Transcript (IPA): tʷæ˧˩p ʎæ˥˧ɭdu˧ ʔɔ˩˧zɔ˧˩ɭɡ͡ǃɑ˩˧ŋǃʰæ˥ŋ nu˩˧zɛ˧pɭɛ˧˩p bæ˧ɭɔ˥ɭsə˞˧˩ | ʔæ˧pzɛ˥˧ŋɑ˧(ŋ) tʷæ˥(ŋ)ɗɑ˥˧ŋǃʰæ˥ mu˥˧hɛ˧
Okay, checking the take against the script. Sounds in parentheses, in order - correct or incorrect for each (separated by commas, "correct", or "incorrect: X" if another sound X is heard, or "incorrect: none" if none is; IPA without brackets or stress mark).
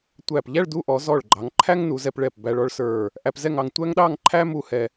correct, correct